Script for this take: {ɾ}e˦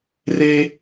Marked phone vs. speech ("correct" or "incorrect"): incorrect